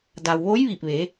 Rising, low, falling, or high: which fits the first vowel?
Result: low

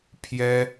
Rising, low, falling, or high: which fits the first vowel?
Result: high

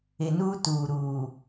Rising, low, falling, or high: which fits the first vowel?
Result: low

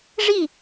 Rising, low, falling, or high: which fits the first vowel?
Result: falling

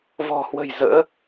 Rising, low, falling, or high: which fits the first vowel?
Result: low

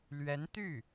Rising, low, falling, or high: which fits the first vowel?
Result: rising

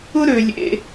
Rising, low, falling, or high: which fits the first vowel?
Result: high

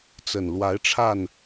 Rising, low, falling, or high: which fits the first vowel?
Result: low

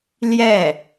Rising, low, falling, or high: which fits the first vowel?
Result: falling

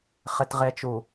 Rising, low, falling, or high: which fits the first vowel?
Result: low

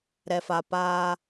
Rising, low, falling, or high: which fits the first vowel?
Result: low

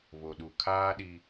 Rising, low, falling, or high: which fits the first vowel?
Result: low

